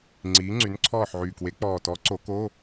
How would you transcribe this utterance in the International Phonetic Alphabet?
ŋ͡ǀiː˨˥ŋ͡ǀy˨˥n ǀʰɔː˦˨ħʕyː˨˩kwe˨˥ k͡pɔː˨˩tɔ˨˥ ǀo˨˩˦ko˧˥˧

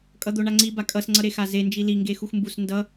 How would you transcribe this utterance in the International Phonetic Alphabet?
kʼʌd̪oɳaŋ͡ǀi bakʼʌs ŋ͡ǀʌɾexaze nd͡ʒili ŋɡexuxmbus ndʌ

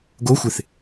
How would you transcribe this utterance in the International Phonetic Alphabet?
ɡoxʷɪθ

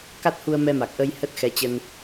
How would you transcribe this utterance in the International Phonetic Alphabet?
ka˦˥t̚hu˧ə̯mɛ˧ ma˨˩k̚ ʔə˧j hə˦˥t̚xɛ˨˦t͡ɕə˧n

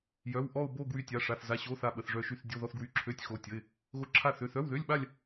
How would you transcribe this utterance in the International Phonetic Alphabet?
jœ˧˥˧w ʔɔ˥˧ʊ̯bo˥˧ ɡwy˥˧tʲa˧˥˧ʂa˧˥˧θ za˧˥˧ɕo˧˥˧ θa˥˧ɓə˧˥˧θʐœ˥˧ʃy˥˧θ dʲo˧˥˧ðɔ˥˧θɡwy˧˥˧ ǁʰø˧˥˧tʲ xo˧˥˧tʲə˧˥˧ɪ̯ | ɣo˧˥˧ ǁʰa˥˧θø˧˥˧ θœ˧˥˧wðø˧˥˧lʲɓa˥˧lʲ

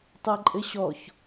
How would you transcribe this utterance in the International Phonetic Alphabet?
tˤɤǃʼɘɕɔç

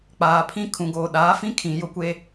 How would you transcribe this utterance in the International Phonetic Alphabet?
k͡paː˨pʰĩ˦ kʰũ˨ɡoː˨ ɗaː˨˦fĩ˦kʰĩ˨ jʊ˦kʷe˦

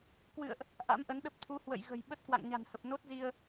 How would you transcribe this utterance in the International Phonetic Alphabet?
kwɨ̰˧˨ə̯ʔ | ʔa̰˧˥mʔə˨˦nɗə˦˥p̚ t̪ʰu˨˦hwə̰˧˨jɣə̤˨˩j ɓə˦˥t̚kwa̰˧˨ŋɲa̤˨˩nhə˨˩p̚ no˦˥t̚zi˧ə̯

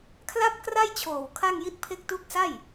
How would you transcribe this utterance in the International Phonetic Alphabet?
kʰla˥˩p̚kra˥˩jt͡ɕʰoː˨˩w kʰa˥˩ŋji˥˩t̚pʰe˥˩k̚ tu˦˥k̚sa˥˩j

